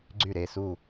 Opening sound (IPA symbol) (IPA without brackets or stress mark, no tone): ɡ͡ǀ